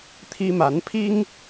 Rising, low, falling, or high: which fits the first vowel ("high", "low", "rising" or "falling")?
high